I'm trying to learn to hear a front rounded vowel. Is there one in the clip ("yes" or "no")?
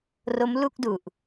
no